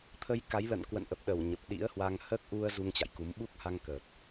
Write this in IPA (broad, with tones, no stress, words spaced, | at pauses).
t̪ʰə˧jka˨˦jlə̰˧˨n kwə̰˧˨nʔə˨˩p̚ɗə˧˩w ɲə˨˩p̚ɗḭ˧˥ə̯hwa˧ŋ həː˦˥k̚ʔu˧ə̯ zu˧ŋt͡ɕa̰˧˨jku˨˦m ɓu˦˥k̚ha˧ŋkəː˨˩t̚